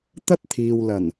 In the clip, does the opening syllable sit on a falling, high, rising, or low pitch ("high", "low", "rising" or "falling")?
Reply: high